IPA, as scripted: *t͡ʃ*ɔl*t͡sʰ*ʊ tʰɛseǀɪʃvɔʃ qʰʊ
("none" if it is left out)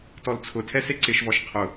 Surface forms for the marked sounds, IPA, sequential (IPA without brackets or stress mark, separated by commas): t, t͡sʰ